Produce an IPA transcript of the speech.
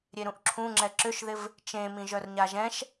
ɾʲ e ɾ ũ ʔ ǁʰ ũ ŋ͡ǁ ɛ ǁ ʏ ʃ ð ɪ v | t͡ʃ ẽ m ĩ ʒ œ r ɲ a ʒ ɛ̃ ʃ

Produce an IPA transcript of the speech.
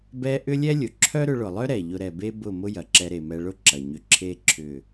b ɛ˧ ʔ ʏ˦ lʲ ɛ˦ lʲ ʊ˨ ǁʰ œ˦ ɾ ʏ˧ ɭ ʊ˨ lˠ œ˦ ɾ ɛ˨ ʎ ʊ˧ ɾ ɛ˨ b e˦ b ʊ˦˨ m ʊ˦ j ɐ˨ ǁ ɛ˧ ɾ e˨ m ɛ˧ ɭ ʊ˦ ǁ ɐ˨ ɲ ʏ˧ ǁʰ e˦ ǁʰ ʏ˦˨

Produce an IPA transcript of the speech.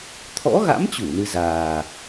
t̪ʰ ɔ̰˧˥ ɣ a̰˧˥ m t͡ɕ u˧˩ n ɨ˧ z aː˨˩

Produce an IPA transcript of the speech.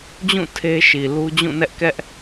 d͡ʑ ũ˦˨ tʰ e˦ ʃ i˨ l u˦ d͡ʑ ũ˦˨ n ɛ˦ ʔ k ɛ˦ ʔ

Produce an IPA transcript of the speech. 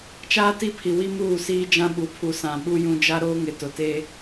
t͡ʃ aː˦ t i˦ pʰ i˨ w i˦ m uː˦˨ s iː˦ d͡ʒ ã˦ ɓ u˨ pʰ u˨ s ã˨ ɓ u˦ j ũ˦ d͡ʒ a˦ ɾ oː˦ ŋ ɪ˨ t ʊ˨ t eː˦

